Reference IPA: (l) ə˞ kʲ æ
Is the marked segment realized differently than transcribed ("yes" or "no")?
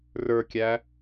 yes